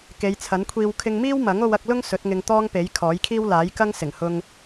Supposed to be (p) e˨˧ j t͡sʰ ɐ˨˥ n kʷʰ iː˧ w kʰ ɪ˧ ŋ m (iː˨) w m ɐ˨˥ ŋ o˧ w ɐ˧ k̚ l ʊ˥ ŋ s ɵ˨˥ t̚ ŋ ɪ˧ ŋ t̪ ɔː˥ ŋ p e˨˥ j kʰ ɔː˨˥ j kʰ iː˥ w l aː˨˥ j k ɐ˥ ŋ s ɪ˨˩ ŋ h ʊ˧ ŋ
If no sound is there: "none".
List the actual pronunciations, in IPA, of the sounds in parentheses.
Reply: k, iː˥

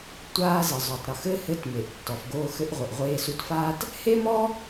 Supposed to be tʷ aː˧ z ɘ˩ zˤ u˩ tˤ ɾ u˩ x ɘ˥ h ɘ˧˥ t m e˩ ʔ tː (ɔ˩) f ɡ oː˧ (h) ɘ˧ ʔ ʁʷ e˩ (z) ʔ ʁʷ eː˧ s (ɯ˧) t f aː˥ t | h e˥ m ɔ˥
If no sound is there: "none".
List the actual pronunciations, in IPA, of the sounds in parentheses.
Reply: ɔ˩, x, none, u˧

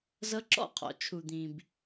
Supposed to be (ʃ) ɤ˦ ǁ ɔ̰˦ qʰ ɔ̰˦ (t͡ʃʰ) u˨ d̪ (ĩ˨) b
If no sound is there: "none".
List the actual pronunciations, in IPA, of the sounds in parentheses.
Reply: z, t͡ʃʰ, ĩ˨

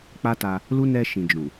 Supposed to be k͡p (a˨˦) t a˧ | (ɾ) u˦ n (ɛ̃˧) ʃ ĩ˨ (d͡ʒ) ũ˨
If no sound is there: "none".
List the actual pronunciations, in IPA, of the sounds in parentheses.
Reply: a˦, l, ɛ˧, d͡ʒ

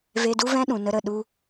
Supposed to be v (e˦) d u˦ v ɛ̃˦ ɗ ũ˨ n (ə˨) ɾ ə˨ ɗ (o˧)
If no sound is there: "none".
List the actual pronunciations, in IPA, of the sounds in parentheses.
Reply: e˧, ə˧, u˧

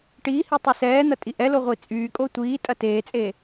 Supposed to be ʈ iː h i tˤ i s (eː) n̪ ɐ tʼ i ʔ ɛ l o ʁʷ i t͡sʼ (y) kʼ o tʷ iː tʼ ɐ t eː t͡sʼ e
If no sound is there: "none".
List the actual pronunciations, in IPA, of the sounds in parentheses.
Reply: ɛː, yː

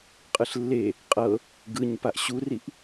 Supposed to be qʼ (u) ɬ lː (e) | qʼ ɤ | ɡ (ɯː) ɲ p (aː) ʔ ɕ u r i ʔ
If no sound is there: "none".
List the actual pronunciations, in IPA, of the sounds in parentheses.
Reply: ɯ, e, ɯ, a

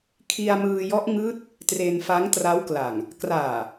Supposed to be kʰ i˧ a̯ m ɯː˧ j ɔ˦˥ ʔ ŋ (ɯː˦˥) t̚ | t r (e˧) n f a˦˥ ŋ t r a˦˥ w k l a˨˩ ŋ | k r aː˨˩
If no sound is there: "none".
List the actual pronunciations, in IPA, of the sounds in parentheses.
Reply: ɯː˦˥, e˧

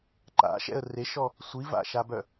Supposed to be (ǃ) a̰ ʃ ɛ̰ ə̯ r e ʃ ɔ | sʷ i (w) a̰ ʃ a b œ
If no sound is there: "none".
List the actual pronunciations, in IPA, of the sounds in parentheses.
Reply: ǃ, v

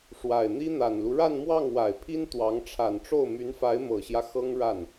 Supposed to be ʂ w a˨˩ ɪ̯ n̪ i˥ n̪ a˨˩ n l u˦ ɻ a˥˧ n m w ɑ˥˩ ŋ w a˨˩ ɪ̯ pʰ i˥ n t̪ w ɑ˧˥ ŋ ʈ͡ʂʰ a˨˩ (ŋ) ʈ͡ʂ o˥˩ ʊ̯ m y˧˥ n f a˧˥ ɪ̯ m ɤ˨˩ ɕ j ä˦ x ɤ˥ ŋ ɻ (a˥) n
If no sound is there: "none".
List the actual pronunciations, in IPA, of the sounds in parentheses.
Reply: n, a˥˩

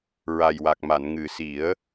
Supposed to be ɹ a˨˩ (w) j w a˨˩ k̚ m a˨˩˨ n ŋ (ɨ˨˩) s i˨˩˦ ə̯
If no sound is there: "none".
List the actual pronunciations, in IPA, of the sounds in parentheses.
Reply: none, ɨ˨˩

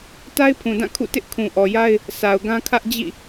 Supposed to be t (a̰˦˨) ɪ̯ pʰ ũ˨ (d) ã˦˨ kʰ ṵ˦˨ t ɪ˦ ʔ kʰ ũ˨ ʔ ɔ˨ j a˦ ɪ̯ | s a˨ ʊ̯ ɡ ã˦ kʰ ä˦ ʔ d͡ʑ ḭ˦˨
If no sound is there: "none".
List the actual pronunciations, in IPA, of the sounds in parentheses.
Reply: a˦, d

